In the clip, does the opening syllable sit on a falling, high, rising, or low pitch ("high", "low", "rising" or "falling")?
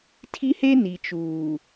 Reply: high